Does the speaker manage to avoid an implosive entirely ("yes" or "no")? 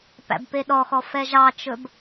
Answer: no